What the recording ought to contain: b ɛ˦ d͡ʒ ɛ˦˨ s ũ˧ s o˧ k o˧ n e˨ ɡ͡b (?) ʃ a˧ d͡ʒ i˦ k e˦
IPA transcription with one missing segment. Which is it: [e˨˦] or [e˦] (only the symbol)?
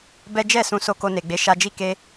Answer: e˨˦